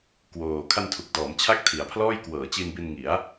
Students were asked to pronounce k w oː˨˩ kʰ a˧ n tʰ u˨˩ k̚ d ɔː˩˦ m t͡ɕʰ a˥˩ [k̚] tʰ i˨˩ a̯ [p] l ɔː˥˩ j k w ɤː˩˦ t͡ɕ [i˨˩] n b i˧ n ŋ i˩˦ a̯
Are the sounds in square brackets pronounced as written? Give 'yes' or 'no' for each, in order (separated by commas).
yes, no, no